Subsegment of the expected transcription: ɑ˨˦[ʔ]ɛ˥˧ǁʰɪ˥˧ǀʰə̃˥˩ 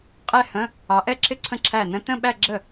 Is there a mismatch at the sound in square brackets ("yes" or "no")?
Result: no